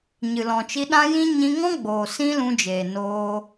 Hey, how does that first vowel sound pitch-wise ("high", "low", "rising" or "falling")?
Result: low